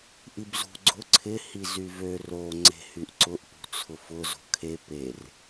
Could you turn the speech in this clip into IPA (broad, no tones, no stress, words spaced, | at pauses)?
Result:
ʔibzṳ ɡ͡ǀʊ ǀʰɪ hizyvø ro ŋ͡ǀe̤hyʔǀʊʔ pṳt͡sʰʊfʊ zo̤kʰe per